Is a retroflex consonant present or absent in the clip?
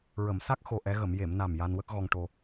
present